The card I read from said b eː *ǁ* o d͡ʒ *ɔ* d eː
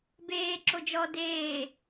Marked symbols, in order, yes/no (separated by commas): yes, yes